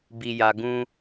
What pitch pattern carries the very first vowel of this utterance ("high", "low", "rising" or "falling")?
low